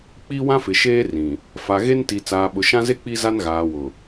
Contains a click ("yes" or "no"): no